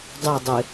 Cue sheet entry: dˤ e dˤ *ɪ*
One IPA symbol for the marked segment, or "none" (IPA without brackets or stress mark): ɪ